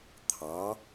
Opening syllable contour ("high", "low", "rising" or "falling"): rising